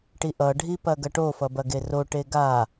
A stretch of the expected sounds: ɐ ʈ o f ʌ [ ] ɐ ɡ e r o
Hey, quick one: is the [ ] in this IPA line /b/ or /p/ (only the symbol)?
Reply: b